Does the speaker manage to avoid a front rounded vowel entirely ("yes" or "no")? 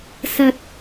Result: yes